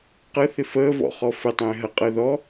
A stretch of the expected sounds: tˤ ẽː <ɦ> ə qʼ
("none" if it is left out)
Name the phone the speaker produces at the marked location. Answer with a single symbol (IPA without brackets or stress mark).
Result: ɦ